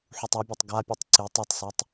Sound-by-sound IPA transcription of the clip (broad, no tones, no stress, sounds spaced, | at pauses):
ħ u tˤ ɐ bʲ ɐ tˤ ɡ a pʲ ɨ tˤ ǀ i tˤ ɨ tˤ s a tˤ